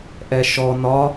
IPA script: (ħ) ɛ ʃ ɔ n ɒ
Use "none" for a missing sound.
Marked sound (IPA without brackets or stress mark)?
ʔ